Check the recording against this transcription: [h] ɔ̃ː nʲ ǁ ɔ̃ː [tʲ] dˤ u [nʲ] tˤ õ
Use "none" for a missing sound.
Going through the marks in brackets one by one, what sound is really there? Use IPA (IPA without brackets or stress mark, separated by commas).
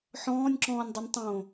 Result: ħ, nʲ, nʲ